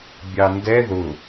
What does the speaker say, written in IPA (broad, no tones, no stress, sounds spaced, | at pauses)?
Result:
bʲ ɑ n d ɛ ð ʊ